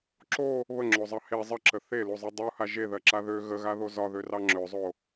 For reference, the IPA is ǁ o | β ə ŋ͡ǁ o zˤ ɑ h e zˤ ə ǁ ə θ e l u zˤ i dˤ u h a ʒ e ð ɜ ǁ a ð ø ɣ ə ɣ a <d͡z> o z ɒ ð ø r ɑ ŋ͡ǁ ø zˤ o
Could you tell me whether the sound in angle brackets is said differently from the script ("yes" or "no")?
yes